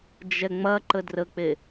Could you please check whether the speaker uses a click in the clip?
yes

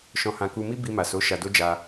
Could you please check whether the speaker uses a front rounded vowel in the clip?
no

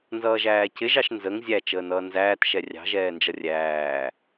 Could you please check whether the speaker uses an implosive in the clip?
no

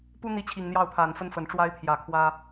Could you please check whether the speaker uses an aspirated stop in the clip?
yes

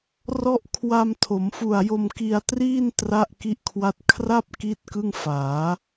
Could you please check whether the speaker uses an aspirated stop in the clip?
yes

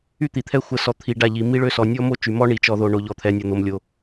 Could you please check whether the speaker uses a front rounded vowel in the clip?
yes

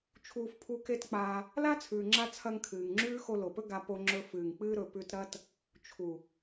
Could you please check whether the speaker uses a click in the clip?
yes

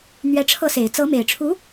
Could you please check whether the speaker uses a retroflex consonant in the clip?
yes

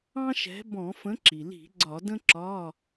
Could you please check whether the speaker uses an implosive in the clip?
no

